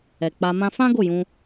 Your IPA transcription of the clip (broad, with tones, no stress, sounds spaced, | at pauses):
ɛ˨ k͡p a˧ m ã˦ f ã˦ ɡ o˦˨ j ũ˧